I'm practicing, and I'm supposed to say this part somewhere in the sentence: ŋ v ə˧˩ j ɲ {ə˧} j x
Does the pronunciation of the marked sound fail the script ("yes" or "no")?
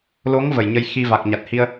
no